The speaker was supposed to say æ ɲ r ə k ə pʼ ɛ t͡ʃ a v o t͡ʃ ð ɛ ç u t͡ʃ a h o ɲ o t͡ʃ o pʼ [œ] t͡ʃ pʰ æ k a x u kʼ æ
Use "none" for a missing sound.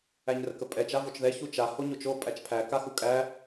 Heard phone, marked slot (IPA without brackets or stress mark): æ